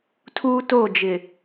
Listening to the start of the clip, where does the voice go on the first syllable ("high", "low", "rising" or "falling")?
high